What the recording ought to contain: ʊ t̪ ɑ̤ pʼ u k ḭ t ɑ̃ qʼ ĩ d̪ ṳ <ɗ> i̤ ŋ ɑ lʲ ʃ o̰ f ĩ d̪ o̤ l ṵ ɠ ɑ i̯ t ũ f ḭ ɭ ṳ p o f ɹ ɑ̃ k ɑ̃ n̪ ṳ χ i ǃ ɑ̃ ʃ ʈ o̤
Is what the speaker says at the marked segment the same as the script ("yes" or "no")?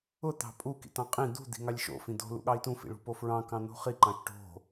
no